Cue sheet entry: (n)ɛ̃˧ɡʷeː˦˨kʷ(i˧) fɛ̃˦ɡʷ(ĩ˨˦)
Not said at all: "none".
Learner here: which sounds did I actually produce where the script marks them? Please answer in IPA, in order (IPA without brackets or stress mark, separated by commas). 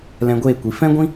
l, i˨, ĩ˦